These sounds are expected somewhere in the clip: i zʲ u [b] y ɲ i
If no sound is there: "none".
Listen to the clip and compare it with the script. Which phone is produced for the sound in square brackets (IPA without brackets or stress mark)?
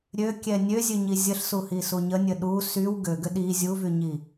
v